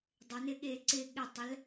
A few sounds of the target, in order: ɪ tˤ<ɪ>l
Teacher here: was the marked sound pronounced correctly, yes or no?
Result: no